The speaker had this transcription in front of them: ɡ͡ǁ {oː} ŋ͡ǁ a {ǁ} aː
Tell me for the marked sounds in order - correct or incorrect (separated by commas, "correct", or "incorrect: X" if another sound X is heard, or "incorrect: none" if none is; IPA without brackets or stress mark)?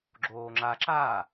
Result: correct, correct